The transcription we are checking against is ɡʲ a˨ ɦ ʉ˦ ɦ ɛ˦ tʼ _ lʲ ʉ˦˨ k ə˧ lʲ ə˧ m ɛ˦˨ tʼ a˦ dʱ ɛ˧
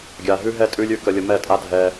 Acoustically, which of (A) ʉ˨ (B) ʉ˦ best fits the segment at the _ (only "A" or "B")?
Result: B